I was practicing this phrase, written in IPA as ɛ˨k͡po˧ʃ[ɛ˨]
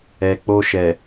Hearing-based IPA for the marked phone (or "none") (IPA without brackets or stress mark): ɛ˨